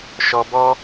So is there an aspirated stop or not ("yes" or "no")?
no